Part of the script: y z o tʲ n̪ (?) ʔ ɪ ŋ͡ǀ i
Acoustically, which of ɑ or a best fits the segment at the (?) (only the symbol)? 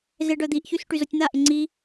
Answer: a